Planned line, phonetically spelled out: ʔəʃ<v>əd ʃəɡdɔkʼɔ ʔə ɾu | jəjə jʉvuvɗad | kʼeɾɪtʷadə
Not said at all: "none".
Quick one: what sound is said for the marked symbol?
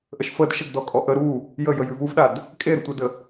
f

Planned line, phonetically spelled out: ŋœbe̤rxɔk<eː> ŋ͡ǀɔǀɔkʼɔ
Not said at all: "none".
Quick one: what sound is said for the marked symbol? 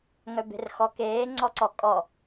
eː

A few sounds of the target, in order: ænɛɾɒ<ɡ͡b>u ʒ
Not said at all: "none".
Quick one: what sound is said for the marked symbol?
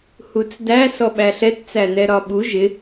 ɓ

